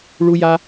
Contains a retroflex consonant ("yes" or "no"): yes